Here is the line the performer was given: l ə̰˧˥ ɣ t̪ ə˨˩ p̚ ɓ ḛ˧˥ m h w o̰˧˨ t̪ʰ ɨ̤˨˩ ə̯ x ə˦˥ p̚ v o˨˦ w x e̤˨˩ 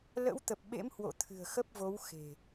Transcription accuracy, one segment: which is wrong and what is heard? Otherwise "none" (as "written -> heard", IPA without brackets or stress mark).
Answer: ɣ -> w